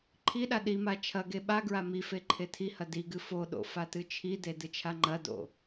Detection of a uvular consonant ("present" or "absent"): absent